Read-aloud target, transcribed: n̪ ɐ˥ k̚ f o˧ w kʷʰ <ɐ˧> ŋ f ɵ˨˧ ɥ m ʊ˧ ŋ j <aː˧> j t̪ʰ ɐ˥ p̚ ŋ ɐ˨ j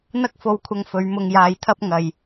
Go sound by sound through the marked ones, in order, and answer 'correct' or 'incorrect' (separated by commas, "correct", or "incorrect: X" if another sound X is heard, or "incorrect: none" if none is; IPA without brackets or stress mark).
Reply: correct, correct